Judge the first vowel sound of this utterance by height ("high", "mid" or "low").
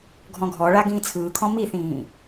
mid